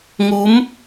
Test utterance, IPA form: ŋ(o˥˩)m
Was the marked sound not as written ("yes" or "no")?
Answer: yes